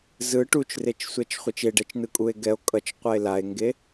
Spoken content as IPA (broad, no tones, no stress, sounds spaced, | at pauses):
z ɯ ʈ u t͡ʃ r e t͡ʃ sʷ ɛ t͡ʃ χʷ e t͡ʃ e ɖ ɛ t͡ʃ n ɯ kʼ u e̯ ɡ ɛ o̯ kʼ ʌ t͡ʃ qʷ a e̯ l a e̯ ŋ ɡ e